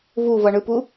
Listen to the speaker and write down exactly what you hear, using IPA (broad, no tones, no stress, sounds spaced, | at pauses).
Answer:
v u v ʌ ɳ ɯ p u